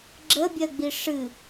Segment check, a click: present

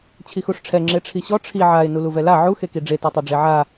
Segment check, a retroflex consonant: present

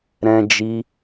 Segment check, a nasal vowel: present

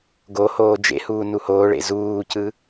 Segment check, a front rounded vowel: absent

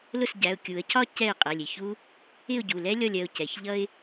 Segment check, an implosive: absent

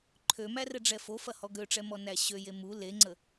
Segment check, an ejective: absent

